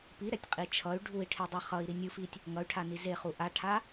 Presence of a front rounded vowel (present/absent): present